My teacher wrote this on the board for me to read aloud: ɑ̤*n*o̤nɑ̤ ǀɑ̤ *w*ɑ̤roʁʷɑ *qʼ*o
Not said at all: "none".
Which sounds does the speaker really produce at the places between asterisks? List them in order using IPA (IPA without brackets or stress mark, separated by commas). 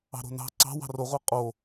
ɾ, w, qʼ